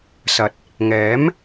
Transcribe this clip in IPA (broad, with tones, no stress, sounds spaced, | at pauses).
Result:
s ɐ˨ t̚ | ŋ ɛː˨˥ m